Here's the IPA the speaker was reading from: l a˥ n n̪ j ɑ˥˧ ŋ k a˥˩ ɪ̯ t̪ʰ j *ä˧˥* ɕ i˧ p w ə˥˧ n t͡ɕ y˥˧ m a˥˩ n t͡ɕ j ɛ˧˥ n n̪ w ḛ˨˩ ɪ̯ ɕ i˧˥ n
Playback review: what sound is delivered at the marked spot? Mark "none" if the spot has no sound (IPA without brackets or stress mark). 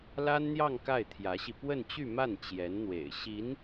ä˧˥